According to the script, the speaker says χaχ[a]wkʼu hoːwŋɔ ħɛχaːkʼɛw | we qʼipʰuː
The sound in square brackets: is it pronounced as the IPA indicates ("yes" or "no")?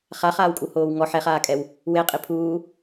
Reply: no